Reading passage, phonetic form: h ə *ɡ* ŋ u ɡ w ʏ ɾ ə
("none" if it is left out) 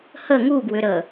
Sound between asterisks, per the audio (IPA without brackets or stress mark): none